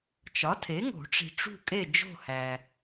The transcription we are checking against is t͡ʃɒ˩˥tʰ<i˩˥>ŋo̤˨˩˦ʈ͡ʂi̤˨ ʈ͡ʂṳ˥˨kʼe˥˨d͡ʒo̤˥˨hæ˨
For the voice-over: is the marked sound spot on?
no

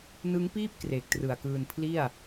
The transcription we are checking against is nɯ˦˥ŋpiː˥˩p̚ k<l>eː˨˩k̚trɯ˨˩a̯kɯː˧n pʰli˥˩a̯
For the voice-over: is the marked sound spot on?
no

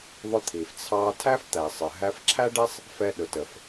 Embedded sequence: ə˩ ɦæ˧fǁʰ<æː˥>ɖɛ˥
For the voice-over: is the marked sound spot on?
no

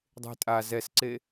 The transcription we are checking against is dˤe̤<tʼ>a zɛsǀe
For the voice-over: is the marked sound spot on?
yes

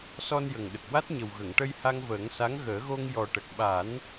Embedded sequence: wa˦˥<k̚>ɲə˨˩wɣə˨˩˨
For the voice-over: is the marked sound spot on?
no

